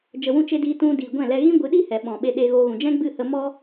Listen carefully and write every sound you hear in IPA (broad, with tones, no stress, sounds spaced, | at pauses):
d͡ʒ ə˨ w ũ˧ t͡ʃ e˧ d iː˧ t ũ˧ d iː˨ ɡʷ ɛ̃˦˨ l ɛ˧ ɣ ĩ˦ ɡʷ ɨ˨˦ ɗ i˦ h ɛ˨ ɓ ɔ̃˨ ɓ e˧ ɗ e˧ ɣ o˧ ɣ ũ˨ d͡ʒ ɛ̃˦ ɡ͡b ɨ˦˨ h ə˧ m ɔ˧